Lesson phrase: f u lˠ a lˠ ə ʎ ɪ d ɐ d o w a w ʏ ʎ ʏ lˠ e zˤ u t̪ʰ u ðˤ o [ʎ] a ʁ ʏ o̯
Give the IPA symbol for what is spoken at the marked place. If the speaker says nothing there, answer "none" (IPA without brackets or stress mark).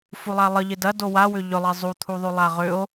lˠ